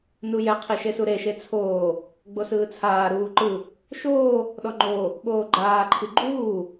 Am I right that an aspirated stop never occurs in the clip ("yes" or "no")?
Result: no